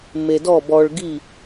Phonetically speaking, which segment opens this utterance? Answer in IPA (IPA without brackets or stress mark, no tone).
m